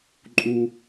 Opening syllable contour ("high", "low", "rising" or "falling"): low